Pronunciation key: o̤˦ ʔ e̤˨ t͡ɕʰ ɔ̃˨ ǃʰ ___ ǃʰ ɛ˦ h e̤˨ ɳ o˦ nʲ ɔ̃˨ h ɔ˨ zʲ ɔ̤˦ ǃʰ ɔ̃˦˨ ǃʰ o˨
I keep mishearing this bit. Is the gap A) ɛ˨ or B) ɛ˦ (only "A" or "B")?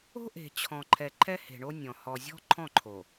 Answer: A